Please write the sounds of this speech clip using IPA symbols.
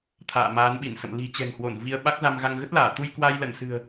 t̪ʰ a̰ː˧˨ m aː˨˦ n ɓ i˧˩ n s ə̰˧˨ m l i̤˨˩ t͡ɕ ɛ̤˨˩ ŋ h w o˧˩ n v i˧ ə̯ ɓ a˦˥ k̚ z a˧ m ɣ a˧ ŋ ɣ ə˦˥ t̚ l aː˧˩ t̪ u˧ j k w a˧ j l ə˧˩ n s ɨ̤˨˩ ə̯

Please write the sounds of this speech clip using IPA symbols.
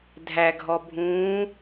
dʱ æ ɡʱ ɔ bʱ ũː

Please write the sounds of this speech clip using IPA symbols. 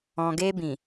ɔ̃˨ ɡ e˧ b ĩ˨

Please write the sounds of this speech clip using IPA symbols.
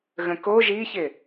ɣ ə̃ k o ʒ i ç ɪ

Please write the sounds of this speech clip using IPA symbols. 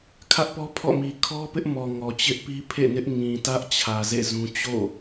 kʰ ä˦ ʔ p ɔ˦ pʰ ɔ̰˦˨ m i˨ kʰ ɔ˦ p ɪ˦ ʔ m ɔ˨ ŋ ɔ˨ t͡ɕ ɪ˦ ʔ p i˦ pʰ ḛ˦˨ n ɪ˦ ʔ ŋ ĩ˨ t ä˦ ʔ t͡ɕʰ ä˨ z ḛ˦˨ z ũ˦ t͡ɕ o̰˦˨

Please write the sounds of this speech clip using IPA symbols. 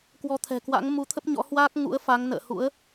k w ɔ˨˦ t̪ʰ ɛ̤˨˩ k w a̰˧˥ ŋ m u˨˦ t̪ʰ ə˦˥ p̚ ɲ ɔ̰˧˥ h w aː˦˥ k̚ ŋ ṵ˧˥ ə̯ f a˨˦ ŋ n ə̰ː˧˨ h ṵ˧˥ ə̯

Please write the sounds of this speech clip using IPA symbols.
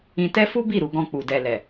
ĩ˧ t ɛ˦ f u˦ b i˦˨ ɾ u˨ ɡ ɔ̃˧ k͡p u˨ d ɛ˨ l ɛ˨

